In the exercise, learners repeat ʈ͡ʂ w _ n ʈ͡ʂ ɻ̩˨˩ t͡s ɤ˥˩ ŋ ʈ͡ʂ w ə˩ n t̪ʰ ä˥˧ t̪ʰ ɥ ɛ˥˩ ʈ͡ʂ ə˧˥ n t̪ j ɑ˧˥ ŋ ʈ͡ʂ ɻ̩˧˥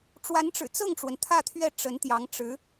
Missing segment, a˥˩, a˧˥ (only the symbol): a˧˥